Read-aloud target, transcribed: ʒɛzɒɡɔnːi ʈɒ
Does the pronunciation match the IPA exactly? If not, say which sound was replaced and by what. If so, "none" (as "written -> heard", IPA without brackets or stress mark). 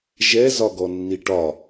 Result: none